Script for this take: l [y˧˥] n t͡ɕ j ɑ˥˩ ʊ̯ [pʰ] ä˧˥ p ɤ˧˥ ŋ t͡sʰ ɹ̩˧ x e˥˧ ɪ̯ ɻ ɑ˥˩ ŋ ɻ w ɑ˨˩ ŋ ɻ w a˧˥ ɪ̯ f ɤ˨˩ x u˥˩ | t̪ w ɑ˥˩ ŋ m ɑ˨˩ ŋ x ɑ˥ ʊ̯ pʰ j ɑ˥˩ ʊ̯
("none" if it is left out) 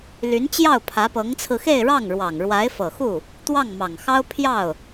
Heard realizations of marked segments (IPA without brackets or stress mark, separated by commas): y˧˥, pʰ